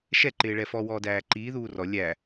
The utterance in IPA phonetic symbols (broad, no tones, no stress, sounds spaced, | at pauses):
ʃ ɛ ǃ ɪː ɭ ɛ f ɔ w ɔː d æː ǃ iː ð uː r ɔ lʲ æ